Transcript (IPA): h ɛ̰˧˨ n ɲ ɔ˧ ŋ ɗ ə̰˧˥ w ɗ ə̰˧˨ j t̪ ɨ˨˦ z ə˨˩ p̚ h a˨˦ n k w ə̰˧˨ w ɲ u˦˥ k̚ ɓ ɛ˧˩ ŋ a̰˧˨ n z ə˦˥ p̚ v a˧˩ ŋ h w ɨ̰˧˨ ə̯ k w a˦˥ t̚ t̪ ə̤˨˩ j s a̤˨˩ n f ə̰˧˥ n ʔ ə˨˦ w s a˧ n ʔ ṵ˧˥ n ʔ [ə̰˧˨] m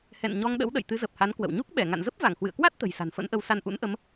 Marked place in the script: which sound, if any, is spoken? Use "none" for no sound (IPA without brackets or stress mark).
ə˨˦